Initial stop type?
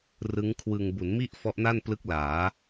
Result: aspirated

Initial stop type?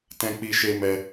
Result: plain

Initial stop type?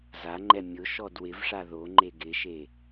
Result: click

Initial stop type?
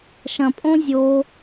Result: ejective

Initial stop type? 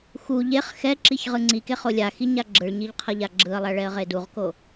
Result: click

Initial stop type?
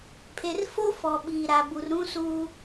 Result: aspirated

